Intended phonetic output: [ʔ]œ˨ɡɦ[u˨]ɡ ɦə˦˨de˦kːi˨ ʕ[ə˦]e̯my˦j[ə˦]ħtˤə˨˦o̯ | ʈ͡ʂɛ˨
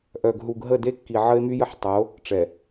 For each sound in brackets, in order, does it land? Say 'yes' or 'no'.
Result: yes, yes, yes, yes

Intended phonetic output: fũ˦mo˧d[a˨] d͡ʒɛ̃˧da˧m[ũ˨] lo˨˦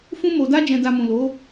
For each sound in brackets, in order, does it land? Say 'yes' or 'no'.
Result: no, yes

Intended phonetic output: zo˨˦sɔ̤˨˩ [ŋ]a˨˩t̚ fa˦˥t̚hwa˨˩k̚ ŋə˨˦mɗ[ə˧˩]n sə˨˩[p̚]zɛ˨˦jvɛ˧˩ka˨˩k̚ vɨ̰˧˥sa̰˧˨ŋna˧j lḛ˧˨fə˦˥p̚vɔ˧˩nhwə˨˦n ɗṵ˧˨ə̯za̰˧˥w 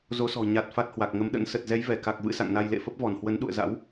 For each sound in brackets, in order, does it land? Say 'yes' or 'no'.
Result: no, no, no

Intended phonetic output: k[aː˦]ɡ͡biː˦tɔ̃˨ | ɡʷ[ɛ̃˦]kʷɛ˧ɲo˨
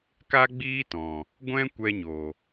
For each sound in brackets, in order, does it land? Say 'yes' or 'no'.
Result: no, yes

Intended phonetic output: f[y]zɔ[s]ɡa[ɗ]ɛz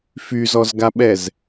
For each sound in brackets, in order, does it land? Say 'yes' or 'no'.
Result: yes, no, no

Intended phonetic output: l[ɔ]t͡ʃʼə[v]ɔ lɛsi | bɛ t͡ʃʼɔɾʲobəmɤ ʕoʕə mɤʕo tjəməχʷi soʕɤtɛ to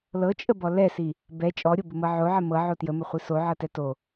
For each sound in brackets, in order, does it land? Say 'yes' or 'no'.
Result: no, no

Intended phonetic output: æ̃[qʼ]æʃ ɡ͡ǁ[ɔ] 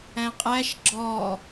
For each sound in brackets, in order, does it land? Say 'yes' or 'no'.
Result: yes, yes

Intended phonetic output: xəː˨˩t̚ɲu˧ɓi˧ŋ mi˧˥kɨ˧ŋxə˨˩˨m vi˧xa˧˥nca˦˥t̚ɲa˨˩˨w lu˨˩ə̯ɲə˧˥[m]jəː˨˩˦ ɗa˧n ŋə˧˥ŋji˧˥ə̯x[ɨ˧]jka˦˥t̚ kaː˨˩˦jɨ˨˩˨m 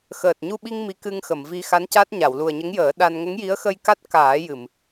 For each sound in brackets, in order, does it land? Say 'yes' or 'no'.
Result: no, no

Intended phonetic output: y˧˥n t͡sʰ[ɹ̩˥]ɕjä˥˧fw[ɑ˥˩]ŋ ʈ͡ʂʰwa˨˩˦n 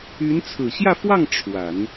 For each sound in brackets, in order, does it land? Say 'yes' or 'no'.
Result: no, yes

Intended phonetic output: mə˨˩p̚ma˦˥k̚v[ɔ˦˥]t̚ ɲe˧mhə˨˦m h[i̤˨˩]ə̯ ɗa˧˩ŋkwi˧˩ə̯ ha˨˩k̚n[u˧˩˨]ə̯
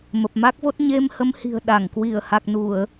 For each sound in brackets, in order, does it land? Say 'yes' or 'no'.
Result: no, yes, yes

